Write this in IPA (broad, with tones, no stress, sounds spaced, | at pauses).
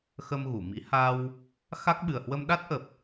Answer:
x ə˧ m ɣ u˧˩ m ḭ˧˥ h a˧ w | x a˦˥ k̚ ɓ ɨ˨˩ ə̯ h w ə˧ m ɗ a˦˥ t̚ ʔ ə˨˩ p̚